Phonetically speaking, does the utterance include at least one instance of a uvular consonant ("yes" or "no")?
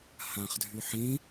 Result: yes